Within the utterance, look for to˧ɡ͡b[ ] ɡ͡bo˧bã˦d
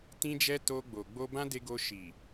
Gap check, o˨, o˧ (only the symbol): o˨